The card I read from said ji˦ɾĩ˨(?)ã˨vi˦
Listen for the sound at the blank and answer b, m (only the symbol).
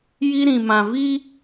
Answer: m